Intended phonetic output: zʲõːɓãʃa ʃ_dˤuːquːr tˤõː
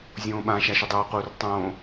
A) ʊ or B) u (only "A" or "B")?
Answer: A